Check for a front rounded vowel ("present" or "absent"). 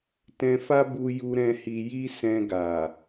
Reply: absent